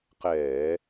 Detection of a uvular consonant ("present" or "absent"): present